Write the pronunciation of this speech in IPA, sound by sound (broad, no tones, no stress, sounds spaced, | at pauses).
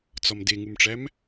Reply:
t͡s ɒ m d e ŋ u m ʈ͡ʂ æ m